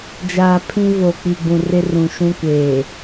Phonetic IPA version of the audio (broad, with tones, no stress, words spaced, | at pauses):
d͡ʒaː˨pʰĩ˦ vo˨k͡pi˨ɡ͡bũ˨ rɪ˦rũ˨ ʃũ˦kʷeː˨